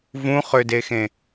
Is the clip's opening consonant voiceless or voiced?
voiced